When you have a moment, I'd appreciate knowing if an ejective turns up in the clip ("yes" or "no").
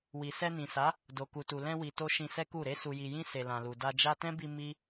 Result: no